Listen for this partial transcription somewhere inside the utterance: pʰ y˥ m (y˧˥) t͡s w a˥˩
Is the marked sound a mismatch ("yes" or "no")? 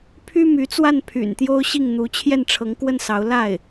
no